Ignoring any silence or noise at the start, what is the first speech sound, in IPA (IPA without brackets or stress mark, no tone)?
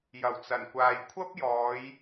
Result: j